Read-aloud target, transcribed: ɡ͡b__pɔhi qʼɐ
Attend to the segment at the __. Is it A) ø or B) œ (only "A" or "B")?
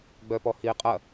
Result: B